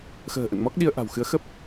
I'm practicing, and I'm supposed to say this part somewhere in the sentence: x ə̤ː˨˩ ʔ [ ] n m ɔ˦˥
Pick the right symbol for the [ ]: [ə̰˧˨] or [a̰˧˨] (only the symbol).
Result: ə̰˧˨